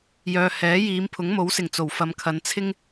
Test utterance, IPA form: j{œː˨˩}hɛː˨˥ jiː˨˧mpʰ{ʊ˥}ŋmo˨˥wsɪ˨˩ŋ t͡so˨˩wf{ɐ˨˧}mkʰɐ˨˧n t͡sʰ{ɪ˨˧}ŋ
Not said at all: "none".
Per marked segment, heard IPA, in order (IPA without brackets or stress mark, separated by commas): œː˨, ʊ˨˥, ɐ˨˧, ɪ˥